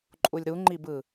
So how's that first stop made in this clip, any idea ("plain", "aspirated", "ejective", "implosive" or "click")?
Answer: click